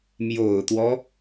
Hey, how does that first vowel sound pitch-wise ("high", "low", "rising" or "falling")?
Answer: low